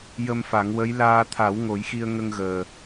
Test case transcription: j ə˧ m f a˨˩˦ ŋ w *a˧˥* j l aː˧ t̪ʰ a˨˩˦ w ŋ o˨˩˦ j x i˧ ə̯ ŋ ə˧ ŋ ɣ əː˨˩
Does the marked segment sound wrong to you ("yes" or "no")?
yes